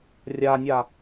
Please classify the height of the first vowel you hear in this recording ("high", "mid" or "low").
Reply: low